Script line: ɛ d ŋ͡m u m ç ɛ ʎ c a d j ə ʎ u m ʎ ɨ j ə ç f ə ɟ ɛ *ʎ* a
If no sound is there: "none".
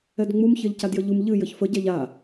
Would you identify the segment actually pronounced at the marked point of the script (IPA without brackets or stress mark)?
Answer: ʎ